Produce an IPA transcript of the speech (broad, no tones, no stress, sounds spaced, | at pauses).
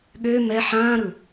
ɠ ø m ɛ ħ ãː ɾ ɯ